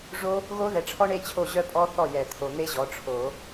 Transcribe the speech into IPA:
ʐ o˦˥ | ɣ o˦˥ ð ɛ˨ ʈ͡ʂʰ ɔ˦˥ ɳ e˥˧ t͡ɕʰ o˥˩ ʑ œ˥˧ pʼ ɔ˦˥ θ ɔ˥˩ j ɛ˨˩˦ t̪ʰ o˨ n̪ e˦˥ ʑ ɔ˩˥ ʈ͡ʂʰ o˨˩˦

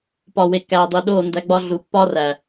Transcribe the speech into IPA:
p ɒ˨ w e˨ kː æː˨ dˤ i˨ ɗ o˦˨ n d æ˧ ɡ͡b ɒ˧ ɮ u˨ pː ɒ˦ r æ˨

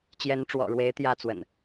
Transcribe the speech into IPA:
t͡ɕ j ɛ˨˦ n ʈ͡ʂ w ɔ̰˨˩ ɻ w e˨˦ ɪ̯ t̪ j ä˥˨ t͡s w ə̰˨˩ n

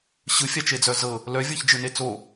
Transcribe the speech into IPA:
ɕ ɯ fʲ a t͡ʃ e d͡z œ z ɤ | l œ vʲ ɤ ç d͡ʒ ɯ n e t͡s o

